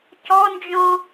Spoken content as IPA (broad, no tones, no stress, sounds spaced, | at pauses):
c ɔ n d͡ʒ ɔ̃